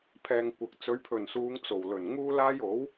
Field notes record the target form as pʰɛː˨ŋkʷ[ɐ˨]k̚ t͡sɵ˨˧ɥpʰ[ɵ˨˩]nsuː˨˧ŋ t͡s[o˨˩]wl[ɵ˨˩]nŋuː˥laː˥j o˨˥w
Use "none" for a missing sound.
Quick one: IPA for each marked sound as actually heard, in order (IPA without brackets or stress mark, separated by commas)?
ɐ˨, ɵ˨˩, o˨˩, ɵ˨˩